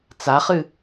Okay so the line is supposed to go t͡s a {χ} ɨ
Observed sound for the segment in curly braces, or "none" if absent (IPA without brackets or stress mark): χ